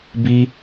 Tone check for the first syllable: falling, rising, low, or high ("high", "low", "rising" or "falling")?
high